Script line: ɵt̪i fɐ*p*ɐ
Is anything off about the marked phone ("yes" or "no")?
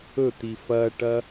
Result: yes